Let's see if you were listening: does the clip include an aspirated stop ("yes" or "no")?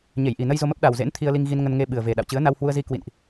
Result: yes